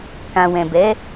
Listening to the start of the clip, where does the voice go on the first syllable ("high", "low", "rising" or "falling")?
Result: low